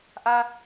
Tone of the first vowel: high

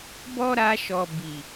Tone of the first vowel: high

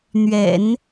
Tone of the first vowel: low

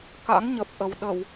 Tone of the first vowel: rising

